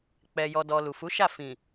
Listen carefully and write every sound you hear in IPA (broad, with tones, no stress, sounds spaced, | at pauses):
k͡p ɛ˨ j ɔ˨ d ɔ˨ l u˨ f u˨˦ ʃ a˦˨ f ĩ˨